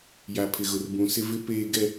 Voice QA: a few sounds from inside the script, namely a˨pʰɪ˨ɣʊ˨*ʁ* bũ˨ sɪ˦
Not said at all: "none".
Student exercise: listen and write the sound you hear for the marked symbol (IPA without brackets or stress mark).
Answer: r